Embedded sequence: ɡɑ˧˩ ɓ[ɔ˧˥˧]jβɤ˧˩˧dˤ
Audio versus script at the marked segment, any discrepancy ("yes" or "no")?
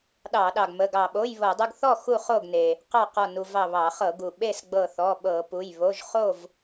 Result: yes